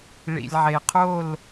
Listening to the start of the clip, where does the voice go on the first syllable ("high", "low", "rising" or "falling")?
low